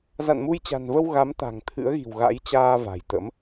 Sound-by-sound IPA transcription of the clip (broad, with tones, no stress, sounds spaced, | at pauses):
z a̰˧˨ n m u˧ j t͡ɕ a̤˨˩ n v ə˧ w ɣ a˨˦ m t̪ a̤˨˩ ŋ t̪ʰ ɨ̰˧˥ ə̯ ɣ i̤˨˩ w ɣ a̰˧˥ j t͡ɕ aː˧ v a̤˨˩ j t̪ ə̰˧˥ m